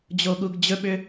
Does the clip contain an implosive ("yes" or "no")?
yes